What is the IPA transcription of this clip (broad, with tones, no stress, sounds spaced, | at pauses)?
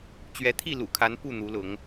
t͡ɕ ɥ ɛ˨˦ t̪ʰ i˥˨ l ṵ˨˩ kʰ a˨˦ n p u˥˨ n̪ u˨˦ l ʊ˨˦ ŋ